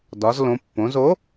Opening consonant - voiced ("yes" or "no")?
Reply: yes